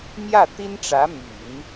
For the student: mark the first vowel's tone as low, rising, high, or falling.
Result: falling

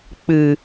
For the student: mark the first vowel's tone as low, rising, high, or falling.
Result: low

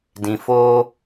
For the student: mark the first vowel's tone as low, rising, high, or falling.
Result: low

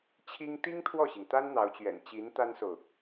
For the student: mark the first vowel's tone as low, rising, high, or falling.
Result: high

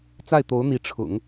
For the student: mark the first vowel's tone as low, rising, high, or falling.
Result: falling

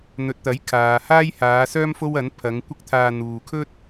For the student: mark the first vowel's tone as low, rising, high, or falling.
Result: low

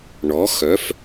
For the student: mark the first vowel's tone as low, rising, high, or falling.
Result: rising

